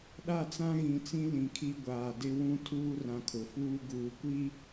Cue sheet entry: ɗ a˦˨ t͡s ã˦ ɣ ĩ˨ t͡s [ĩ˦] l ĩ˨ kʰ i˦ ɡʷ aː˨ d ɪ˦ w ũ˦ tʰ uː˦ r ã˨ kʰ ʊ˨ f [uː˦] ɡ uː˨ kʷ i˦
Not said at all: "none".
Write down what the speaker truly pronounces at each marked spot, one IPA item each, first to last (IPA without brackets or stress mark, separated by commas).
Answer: ĩ˦, uː˦